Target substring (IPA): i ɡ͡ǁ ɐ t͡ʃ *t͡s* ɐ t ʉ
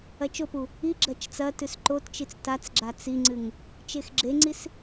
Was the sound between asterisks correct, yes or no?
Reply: yes